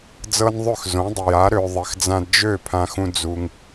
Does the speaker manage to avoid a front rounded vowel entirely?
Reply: no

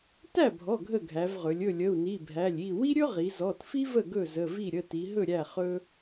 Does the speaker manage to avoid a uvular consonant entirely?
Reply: no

